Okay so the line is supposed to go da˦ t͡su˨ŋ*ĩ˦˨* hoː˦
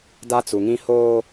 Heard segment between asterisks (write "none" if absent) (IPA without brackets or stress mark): ĩ˦